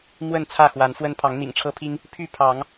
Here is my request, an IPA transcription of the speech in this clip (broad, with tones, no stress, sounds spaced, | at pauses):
m w ə˥˨ n t͡sʰ ä˥˨ x w a˨˦ n f w ə˦ n pʰ ɑ˨˦ ŋ n̪ ḭ˨˩ ŋ ʈ͡ʂʰ ɤ˦ pʰ i˦ ŋ | pʰ y˥˨ pʰ ɑ˨˦ ŋ